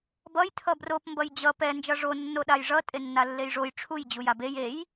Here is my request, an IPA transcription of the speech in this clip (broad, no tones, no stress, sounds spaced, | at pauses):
b ʌ j tʰ ʌ b r o p m b ʌ j d͡ʑ ʌ p ɛ n d͡ʒ ʌ ʐ o nː o ɗ a j ʐ ʌ tʼ e nː a lː e j ʐ o j ʈ͡ʂʰ u j d͡ʑ u j a b e j e j